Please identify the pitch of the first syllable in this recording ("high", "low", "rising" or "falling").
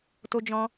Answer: high